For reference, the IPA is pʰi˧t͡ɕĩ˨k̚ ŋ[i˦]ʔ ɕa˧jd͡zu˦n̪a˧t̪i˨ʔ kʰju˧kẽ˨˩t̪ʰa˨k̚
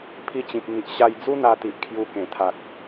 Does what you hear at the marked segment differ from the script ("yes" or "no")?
yes